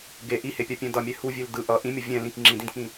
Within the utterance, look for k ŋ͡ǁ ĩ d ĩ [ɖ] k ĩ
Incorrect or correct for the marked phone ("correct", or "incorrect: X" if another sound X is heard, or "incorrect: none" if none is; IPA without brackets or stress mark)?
incorrect: d